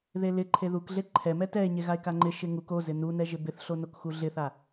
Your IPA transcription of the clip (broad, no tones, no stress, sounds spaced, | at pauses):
ð e l ɪ ǃʰ e ð u k ɮ e ǃʰ ɛ m ɛ t ɛ e̯ ɲ e ɣ a e̯ k a ŋ͡ǃ ɪ ʃ ɪ ŋ u k o z ɪ n u n ɛ ʒ ɪ b ɪ θ ɬ o n o k x u ɮ ɪ θ a